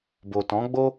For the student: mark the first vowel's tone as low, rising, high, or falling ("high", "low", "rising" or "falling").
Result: low